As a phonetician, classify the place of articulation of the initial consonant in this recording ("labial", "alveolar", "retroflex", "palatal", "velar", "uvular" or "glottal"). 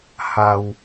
glottal